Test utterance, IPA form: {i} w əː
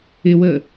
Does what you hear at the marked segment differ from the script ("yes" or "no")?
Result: yes